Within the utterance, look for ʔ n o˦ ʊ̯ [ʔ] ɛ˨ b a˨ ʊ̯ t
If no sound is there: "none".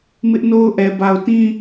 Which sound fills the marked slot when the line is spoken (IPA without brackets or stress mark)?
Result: ʔ